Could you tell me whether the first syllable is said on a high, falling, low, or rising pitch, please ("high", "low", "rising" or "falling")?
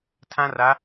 high